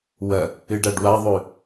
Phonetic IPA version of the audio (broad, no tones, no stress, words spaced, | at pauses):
wɐ | ɨɖaɖwaðˤʉ